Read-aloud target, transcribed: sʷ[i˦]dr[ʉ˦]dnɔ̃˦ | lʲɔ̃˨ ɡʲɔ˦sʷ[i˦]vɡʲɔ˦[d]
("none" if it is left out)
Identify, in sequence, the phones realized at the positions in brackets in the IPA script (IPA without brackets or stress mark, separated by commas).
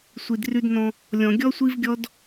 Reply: i˨, ʉ˦, i˦, d